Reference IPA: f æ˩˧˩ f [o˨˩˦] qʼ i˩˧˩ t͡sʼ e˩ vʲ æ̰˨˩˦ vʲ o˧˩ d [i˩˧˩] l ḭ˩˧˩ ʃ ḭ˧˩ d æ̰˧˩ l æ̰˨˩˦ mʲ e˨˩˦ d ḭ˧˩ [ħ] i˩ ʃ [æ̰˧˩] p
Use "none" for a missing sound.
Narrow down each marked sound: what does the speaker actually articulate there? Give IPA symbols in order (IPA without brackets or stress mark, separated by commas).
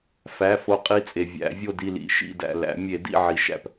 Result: o˨˩˦, i˧˩, ʕ, æ̰˧˩